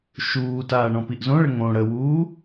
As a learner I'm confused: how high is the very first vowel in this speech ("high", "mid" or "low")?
high